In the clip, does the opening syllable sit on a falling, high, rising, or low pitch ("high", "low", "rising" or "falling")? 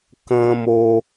high